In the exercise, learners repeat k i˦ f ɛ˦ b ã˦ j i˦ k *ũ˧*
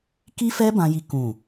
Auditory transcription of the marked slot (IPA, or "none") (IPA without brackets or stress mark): ũ˦˨